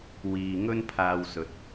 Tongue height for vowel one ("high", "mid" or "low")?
high